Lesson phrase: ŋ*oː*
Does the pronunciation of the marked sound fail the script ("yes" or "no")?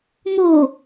yes